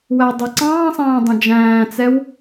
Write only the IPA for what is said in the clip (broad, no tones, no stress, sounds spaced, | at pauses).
w æ dˤ ʌ ǀ ɑ̃ː sˤ æ̃ː dˤ ə̃ d͡ʒ æ̃ː t͡s ɛ w